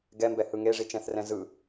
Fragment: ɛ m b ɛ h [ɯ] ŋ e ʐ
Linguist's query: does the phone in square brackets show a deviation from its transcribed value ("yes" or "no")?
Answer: no